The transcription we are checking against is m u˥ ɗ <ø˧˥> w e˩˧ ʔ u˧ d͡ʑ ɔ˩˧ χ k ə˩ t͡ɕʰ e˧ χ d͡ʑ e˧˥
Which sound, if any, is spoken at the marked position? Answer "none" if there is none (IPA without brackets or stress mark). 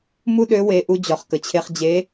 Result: ø˧˥